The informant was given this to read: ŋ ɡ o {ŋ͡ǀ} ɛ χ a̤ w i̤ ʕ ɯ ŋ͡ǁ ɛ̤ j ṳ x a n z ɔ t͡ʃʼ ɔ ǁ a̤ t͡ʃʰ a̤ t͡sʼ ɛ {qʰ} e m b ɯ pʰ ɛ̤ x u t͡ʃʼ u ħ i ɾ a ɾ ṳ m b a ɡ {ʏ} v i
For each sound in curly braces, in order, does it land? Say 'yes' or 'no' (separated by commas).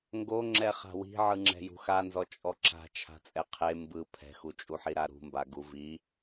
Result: no, yes, no